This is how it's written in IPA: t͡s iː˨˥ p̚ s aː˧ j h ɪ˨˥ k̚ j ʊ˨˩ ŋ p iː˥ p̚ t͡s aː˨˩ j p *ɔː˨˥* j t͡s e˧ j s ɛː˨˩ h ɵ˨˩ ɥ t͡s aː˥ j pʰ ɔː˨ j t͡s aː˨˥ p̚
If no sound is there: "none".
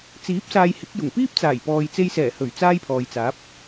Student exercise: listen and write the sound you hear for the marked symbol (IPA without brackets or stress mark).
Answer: ɔː˨